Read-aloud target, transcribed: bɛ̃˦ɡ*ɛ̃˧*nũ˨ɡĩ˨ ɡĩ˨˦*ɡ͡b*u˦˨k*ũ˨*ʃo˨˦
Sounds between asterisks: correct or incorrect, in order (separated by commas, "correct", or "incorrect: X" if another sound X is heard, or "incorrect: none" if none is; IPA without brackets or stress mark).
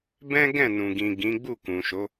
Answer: incorrect: ɛ̃˦˨, correct, correct